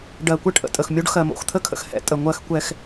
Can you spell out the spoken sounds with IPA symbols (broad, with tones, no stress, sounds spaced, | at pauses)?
ɖ ɜ˨ kʷ ɛ˦ ʈ ʔ ə̰˨ tʼ ə˨ x mʲ o˦ ɖ x ɜ˨ m o̰˨ x t̪ʰ ə˦ kʰ ə̰˨ x h ɛ̰˦ tʼ ə˨ ŋʷ ɜ˦ x kʷ ɛ˦ x